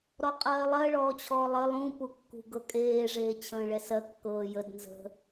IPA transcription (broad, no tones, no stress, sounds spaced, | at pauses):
ɾ ɔ qʼ ɜː lˠ ɜ ɭ ɔː t͡ɕʰ ɔː lˠ ə lˠ ũ p u kː ṳ ɡ ɤ kʼ eː ʐ eː t͡ɕʰ ə̃ː ɭ ɛ s ɜ kː ɤː j ə d n z ə̤